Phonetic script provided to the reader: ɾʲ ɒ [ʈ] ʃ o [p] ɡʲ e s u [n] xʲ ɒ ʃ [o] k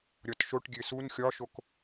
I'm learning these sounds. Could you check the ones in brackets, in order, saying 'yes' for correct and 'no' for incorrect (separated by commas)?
no, no, yes, yes